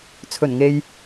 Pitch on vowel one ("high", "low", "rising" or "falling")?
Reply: low